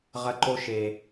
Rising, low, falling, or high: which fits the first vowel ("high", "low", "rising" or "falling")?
high